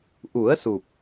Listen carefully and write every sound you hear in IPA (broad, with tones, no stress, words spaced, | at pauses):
ʔu˨˩˦ə̯su˨˩p̚